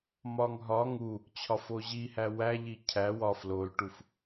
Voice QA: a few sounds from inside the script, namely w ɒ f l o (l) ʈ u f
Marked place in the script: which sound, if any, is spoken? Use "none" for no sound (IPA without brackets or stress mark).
l